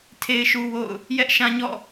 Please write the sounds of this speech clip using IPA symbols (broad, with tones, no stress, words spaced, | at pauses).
tʰe˦ɪ̯ʃu˦wo̰˦˨ʊ̯ | jɛ˦ʔʃã˦ɲɔ̰˦˨